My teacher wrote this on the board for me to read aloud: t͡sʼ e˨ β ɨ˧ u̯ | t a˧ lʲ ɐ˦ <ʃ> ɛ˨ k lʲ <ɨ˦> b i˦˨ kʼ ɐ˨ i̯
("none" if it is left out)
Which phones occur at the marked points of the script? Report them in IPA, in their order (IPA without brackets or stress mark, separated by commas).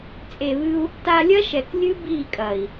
ʃ, ɨ˦